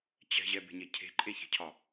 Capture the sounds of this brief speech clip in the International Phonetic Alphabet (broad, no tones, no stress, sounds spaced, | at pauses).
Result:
t͡ɕ ɛ̤ ʑ ɛ b e̤ ɲ e cʰ e̤ ǃʼ e ç e̤ cʰ ɒ